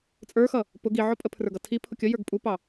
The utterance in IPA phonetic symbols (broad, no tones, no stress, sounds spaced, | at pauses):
t͡sʼ ə˞ x ʌ | p ʊ ɡ i ʕ ɔ pʼ ə pʰ r ə˞ ɡ ʌ tʰ i pʰ ʊ kʲ ə j ə˞ ɡ pʼ u p ɑ